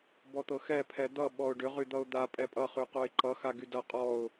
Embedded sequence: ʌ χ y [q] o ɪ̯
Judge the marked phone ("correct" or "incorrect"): correct